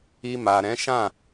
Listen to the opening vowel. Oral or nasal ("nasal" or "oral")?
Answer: oral